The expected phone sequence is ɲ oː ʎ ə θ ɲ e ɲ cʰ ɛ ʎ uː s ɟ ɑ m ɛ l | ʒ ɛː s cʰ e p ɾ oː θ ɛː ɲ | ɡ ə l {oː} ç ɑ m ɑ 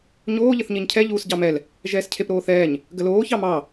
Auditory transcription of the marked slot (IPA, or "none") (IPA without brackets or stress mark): oː